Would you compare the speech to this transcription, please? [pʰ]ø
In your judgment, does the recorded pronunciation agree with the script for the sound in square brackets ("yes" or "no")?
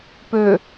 no